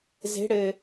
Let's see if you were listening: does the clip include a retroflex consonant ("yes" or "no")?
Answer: yes